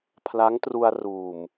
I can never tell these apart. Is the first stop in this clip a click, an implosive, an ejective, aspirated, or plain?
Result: aspirated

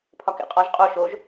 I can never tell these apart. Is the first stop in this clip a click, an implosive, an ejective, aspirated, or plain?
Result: aspirated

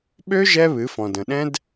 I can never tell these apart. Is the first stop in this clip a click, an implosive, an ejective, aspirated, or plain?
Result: implosive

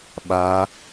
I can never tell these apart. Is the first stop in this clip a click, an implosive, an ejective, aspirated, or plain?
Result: implosive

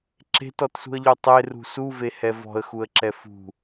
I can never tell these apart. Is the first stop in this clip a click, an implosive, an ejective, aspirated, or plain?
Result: click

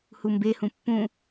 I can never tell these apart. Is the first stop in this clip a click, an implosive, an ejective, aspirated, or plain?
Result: plain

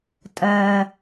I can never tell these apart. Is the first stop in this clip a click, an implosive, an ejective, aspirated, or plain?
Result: ejective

